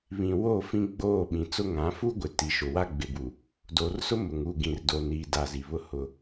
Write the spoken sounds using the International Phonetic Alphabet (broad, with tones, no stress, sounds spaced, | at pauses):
β ĩ˨ w o˦˨ f ĩ˦ ɡ͡b oː˦˨ ɓ ĩ˨ t͡s ʊ˦ ŋ ã˨˦ f u˦ ɡʷ ɪ˨ t i˨ ʃ ʊ˨ w a˦ ɡ͡b ɪ˨ b u˨ | d oː˨ r s ʊ˦ m ʊ˨ ŋ u˦˨ ɡ ĩ˨ r d o˨ n iː˨ d a˨ z i˨ β ʊ˦ h ʊ˦